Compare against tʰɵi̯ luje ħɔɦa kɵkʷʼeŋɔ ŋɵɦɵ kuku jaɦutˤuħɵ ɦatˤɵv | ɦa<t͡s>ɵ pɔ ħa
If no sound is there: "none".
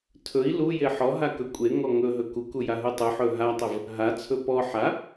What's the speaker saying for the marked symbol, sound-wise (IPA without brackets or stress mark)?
t͡sʰ